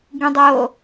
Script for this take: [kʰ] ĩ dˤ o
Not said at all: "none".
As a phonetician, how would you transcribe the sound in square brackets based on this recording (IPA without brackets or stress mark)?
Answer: ɡ